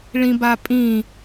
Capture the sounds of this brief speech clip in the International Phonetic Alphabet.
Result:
ɭĩbapʼĩ

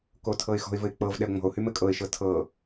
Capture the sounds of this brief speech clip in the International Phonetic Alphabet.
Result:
kotʰɤɪ̯xɔ̤ɪ̯vɘɪ̯ k͡pɤv ɗɛʊ̯ŋ͡mɔ̤ʊ̯hy mɘkʼɤɪ̯ʃɤ tʰɤ

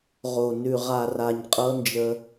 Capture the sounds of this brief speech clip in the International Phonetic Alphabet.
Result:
ʁo˨ nʉ˨ʁa˨ra˨ɲ qʼɤ˧nd͡ʒə˧

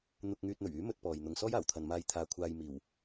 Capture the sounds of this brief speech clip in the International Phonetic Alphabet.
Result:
n̪ʊ˧k̚ŋyː˧t̚n̪ɵ˨˩ɥyː˨˥ mɵ˥t̚pɔː˨jn̪ʊ˧ŋ sɔː˥jaː˨˩wt̪ʰɐ˨nmaː˧j t̪ʰaː˧kʷʰaː˧j miː˨˩w

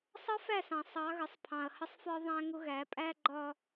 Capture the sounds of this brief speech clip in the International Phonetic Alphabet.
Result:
sˤʌ˦fæ˦˨sɑ̃˨ sˤɑ˨˦ɣə˨sˤ pʰɑ̃˨ɐ̯ hə˦sˤfɒ˦ ðˤæ̃˦ŋʊ˦ ɣæ˨˦pʼæ˦ɡ͡ǃɒ˦

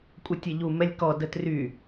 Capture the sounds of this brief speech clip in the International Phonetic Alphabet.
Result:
kʷʼətʲɛʎu mɛlʲkɔ dətry

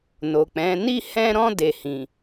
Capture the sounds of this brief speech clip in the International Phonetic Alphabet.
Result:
no˨k͡pɛ̃˨˦ ni˦˨hɛ̃˧ɾɔ̃˧ de˨hĩ˨

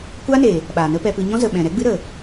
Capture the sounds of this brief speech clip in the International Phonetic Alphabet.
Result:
kʷa˦ne˨ | ɓaː˨nə˦pɛ˧pɨ˧ ɲɔ̃˦zə˨ ɓɛ̃˨ɾɛ˦ɡ͡bɨ˦ ɾə˨

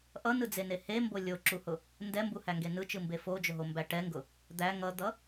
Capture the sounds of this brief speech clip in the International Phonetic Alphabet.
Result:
ʔʌnɯd͡zene hembo lʲoǁuhʊ | ndɛmbuhæŋɡe nɯt͡ʃɯmbe fod͡ʒʊɦombæ ʈɛŋɡʊ | d̪æ ŋʌd̪ʌ

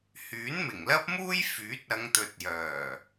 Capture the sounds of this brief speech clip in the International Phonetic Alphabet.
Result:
hyː˨˥nmɪ˨˩ŋlɐ˥p̚muː˥j fyː˨˥t̚ ɐ˨˧ŋt̪ɵ˨t̚jœː˨˩

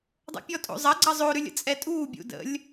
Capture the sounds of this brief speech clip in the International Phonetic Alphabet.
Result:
dˤo̰pʲɔtʼo̰zˤɐ ɡ͡ǀɐzˤo ɾʉlʲə̰t͡sʼɛtʼuː bʲṵdə̰lʲ

